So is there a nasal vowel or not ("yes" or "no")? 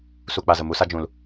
yes